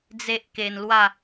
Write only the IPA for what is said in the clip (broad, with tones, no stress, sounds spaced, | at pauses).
d͡z e˦ ʔ k e˧ n l w a˥˧